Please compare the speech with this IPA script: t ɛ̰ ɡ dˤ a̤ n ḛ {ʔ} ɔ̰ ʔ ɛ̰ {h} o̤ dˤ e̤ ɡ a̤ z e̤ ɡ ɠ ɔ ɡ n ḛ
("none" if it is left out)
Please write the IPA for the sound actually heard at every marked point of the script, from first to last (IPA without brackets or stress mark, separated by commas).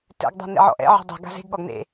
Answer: ʕ, ʕ